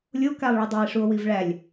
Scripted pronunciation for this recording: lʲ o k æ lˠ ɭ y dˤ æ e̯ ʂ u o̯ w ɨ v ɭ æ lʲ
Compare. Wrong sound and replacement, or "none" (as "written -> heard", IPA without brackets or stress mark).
ɨ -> i